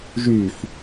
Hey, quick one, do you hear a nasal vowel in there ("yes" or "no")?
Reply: no